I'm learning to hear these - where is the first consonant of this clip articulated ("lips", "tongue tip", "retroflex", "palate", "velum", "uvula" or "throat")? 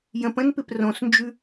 palate